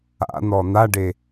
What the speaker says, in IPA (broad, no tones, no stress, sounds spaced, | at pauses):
a̰ n̪ ɔ n̪ a ɖ e